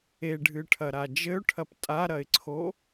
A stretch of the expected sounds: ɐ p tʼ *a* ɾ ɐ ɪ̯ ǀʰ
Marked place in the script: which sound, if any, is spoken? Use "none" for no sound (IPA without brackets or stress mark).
a